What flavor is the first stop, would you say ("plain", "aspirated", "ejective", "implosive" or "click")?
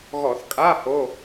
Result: ejective